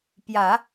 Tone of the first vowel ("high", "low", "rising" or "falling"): low